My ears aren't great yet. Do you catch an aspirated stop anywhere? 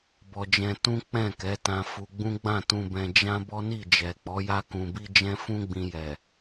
no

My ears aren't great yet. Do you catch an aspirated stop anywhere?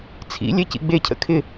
yes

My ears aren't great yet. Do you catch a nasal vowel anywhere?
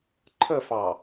no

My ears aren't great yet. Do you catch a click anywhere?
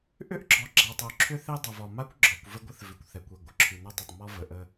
yes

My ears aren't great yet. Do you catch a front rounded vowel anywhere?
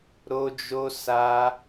no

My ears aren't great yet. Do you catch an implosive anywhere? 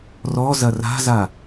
no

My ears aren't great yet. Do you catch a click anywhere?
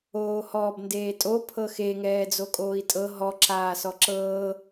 yes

